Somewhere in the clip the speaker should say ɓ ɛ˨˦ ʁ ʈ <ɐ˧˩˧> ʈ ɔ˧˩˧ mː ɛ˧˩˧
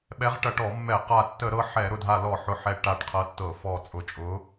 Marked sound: correct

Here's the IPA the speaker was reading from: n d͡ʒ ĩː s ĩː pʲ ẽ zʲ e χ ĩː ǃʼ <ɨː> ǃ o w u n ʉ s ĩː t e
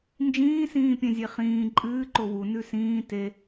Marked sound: correct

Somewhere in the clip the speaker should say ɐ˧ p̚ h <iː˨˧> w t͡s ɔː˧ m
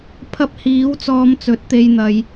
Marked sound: incorrect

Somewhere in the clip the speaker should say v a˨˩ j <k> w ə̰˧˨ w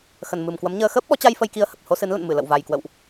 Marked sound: correct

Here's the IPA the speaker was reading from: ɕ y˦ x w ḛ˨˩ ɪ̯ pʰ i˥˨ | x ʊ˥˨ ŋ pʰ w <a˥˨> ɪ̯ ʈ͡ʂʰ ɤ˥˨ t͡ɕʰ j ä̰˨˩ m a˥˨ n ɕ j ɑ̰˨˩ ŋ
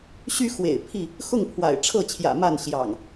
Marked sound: incorrect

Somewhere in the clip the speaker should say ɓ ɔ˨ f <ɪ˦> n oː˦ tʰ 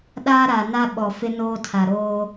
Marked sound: correct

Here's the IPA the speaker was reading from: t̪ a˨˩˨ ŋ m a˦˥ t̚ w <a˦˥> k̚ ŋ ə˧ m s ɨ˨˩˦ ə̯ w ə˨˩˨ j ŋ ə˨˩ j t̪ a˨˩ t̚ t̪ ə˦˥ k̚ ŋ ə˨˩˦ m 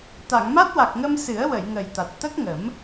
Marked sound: incorrect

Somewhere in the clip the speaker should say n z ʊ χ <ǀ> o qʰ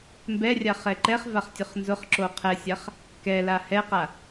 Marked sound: incorrect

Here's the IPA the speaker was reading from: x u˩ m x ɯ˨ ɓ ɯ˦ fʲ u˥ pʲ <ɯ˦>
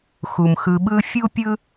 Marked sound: incorrect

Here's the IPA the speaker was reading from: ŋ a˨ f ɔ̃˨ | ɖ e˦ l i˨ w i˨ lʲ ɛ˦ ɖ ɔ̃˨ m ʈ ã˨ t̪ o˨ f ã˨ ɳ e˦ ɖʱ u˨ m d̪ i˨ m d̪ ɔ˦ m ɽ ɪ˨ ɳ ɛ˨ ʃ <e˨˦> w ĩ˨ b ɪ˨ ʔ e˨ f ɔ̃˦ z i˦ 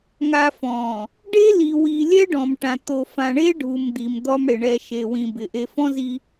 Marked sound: incorrect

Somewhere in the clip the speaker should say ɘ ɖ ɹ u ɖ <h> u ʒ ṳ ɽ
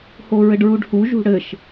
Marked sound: correct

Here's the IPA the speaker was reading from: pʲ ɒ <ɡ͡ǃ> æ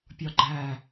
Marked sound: correct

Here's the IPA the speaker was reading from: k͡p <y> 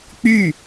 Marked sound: correct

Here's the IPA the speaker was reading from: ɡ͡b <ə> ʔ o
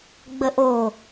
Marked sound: correct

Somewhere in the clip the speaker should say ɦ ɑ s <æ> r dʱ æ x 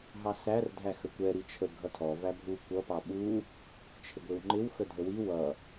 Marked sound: correct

